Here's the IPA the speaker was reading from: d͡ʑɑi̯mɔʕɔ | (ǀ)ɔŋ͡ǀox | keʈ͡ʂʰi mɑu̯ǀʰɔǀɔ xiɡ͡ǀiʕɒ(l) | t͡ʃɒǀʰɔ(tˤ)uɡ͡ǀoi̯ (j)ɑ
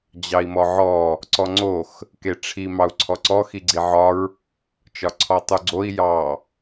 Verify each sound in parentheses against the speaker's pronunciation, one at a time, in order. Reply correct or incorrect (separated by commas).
correct, incorrect, correct, correct